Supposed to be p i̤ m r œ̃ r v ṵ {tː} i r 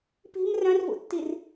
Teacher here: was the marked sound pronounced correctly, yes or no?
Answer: yes